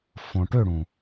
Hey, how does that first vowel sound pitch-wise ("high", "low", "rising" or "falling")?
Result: low